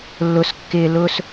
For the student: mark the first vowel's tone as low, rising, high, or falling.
low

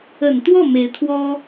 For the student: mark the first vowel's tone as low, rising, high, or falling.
low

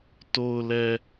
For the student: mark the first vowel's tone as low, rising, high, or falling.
low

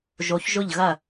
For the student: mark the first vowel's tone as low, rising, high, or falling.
rising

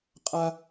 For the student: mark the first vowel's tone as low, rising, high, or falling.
high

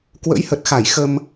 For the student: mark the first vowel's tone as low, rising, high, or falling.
rising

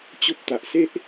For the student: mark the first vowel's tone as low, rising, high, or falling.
high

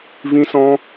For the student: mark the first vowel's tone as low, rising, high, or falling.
high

